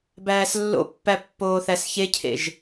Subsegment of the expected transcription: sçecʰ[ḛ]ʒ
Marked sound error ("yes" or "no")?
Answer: no